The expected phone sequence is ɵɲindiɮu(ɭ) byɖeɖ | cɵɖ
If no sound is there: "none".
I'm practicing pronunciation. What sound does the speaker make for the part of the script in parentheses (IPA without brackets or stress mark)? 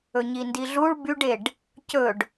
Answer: ɭ